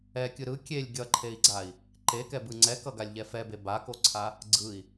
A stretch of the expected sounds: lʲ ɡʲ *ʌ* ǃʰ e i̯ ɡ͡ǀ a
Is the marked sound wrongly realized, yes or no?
no